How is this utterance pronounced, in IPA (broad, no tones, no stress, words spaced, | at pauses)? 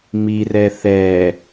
mirɛ θɛ